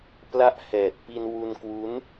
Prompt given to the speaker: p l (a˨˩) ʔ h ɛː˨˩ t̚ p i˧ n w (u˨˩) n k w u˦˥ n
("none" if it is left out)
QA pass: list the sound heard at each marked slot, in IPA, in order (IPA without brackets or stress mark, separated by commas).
a˥˩, u˧